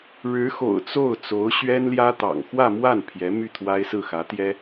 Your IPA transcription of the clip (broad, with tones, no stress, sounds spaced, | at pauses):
ɻ ɻ̩˧˥ x o̰˨˩ ʊ̯ t͡s o˥˩ ʊ̯ t͡s o˧˥ ʊ̯ ɕ ɥ ɛ˥ n l j ä˥ t̪ ɑ̰˨˩ ŋ x w ä˥˧ m w a˥˩ n pʰ j ɛ˧˥ m y˥˩ t̪ʰ w a˥ ɪ̯ s ɹ̩˥˩ x ä˧˥ t̪ j ɛ˥